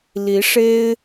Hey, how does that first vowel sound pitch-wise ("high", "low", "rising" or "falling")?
rising